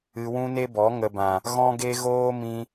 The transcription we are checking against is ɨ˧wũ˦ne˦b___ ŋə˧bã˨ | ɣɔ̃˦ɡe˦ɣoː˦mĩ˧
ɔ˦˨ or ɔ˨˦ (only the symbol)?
ɔ˨˦